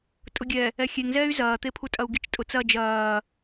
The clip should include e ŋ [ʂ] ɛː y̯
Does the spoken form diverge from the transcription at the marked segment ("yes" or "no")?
yes